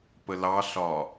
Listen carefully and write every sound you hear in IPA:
p ə l ɑ ɬ ɒ

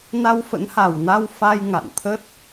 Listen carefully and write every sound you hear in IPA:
n a˧ w f ə̰˧˥ n h a˨˩ w n a˧ w f a˧ j ŋ a̰˧˨ n t̪ʰ ə˦˥ t̚

